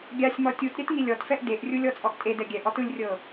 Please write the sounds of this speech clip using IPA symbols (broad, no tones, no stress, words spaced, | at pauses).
ɡʲasʲmɔ tʲut ɾʲɛtŋilʲɔtfɛʔ deʔrʲulʲ ɔt͡sʼɔʔtʼedɛ ɡʲɛʔɔt ɯlʲrʲɤ